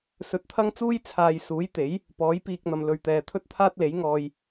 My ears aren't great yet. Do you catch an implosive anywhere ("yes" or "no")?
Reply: no